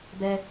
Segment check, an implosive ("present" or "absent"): absent